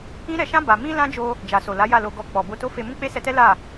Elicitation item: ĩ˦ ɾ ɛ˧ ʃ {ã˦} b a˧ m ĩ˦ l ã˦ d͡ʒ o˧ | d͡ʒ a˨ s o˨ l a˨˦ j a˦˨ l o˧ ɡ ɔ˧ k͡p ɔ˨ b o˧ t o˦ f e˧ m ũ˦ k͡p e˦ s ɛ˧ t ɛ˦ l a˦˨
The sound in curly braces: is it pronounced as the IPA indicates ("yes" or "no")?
yes